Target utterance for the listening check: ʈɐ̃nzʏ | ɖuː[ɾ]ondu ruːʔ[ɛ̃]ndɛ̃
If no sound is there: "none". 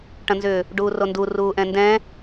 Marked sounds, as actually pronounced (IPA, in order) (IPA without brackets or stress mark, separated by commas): r, ɛ̃